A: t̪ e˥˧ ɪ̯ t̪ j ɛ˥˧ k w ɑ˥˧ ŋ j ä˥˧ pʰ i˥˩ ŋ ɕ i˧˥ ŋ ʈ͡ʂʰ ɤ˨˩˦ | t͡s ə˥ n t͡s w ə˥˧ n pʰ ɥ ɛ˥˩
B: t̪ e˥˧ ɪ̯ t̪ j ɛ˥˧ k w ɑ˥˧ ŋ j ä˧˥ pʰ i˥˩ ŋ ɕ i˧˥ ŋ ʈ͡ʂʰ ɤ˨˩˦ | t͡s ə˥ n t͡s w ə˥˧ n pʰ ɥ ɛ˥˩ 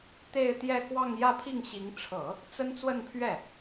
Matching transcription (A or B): A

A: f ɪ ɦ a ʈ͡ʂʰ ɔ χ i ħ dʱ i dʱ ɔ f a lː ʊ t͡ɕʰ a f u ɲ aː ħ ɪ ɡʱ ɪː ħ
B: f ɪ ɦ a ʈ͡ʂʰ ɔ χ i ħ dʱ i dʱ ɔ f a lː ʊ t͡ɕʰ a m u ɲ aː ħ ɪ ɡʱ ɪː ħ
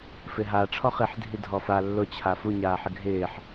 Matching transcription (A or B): A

